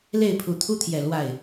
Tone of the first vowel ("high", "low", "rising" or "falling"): falling